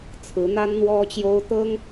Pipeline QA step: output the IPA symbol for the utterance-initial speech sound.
t͡sʰ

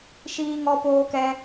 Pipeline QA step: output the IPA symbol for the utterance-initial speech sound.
ʃ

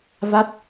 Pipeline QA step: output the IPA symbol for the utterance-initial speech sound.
v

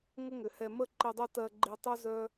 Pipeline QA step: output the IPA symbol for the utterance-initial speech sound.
ŋ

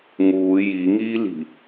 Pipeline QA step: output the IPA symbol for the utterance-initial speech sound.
ŋ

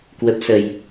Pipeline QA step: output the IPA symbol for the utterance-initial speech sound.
k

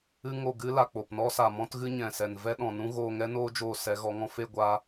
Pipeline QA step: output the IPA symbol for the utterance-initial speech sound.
ɨ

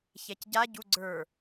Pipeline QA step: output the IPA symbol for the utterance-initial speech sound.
ç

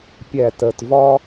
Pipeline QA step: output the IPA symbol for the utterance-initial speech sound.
pʲ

